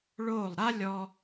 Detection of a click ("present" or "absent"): absent